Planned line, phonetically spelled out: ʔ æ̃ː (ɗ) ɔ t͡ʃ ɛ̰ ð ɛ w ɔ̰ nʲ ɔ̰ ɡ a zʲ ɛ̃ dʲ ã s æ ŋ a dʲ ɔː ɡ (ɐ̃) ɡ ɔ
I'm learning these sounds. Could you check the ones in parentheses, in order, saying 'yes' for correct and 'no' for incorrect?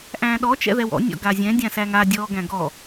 yes, no

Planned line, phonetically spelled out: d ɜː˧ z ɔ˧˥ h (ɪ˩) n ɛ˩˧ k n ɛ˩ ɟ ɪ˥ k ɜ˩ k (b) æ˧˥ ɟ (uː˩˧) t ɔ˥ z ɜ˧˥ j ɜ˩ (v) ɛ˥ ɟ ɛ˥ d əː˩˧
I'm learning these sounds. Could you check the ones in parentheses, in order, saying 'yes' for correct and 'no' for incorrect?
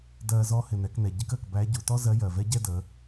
yes, yes, no, yes

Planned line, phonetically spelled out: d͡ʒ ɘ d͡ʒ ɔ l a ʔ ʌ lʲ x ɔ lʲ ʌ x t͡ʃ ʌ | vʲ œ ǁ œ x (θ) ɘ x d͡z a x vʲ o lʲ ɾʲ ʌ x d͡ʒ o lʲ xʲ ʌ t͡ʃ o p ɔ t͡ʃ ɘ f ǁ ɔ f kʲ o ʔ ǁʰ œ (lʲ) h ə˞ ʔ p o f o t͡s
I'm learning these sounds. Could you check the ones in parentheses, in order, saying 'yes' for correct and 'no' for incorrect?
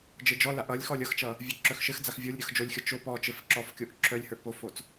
no, yes

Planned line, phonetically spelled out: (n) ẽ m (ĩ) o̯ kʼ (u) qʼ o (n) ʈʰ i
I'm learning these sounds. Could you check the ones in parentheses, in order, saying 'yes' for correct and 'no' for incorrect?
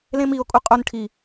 no, no, yes, yes

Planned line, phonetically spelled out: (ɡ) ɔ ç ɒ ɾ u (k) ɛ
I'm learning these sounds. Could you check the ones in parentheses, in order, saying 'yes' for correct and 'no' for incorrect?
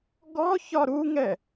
yes, no

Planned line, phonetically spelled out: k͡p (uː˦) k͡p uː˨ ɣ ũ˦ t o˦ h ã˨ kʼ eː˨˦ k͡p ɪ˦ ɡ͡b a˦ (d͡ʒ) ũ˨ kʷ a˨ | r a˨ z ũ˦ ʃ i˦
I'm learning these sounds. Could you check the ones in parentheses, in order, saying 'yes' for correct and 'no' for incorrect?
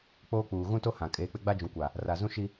no, yes

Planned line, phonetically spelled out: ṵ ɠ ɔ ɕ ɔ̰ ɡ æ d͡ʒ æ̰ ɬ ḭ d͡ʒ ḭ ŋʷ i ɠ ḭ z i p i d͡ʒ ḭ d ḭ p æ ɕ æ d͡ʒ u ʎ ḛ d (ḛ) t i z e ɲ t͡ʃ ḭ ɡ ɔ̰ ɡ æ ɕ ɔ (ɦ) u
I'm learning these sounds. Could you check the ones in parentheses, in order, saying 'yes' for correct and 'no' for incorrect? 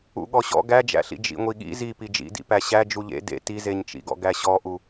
yes, no

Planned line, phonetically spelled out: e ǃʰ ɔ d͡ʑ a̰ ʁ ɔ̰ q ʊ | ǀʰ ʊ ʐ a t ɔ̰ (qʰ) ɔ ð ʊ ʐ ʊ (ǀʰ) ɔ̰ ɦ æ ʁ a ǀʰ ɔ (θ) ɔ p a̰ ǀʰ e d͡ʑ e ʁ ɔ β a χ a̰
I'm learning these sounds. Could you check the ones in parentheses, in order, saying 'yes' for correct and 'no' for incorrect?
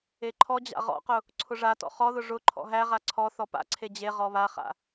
no, no, yes

